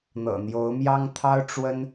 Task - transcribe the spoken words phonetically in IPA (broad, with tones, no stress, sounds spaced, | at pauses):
n̪ ɤ̰˨˩ n̪ j o˨˦ ʊ̯ m j ɑ˦ ŋ t̪ʰ ɑ˦ ʊ̯ ʈ͡ʂ w ə˦ n